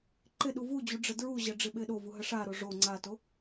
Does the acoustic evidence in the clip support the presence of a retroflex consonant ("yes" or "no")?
yes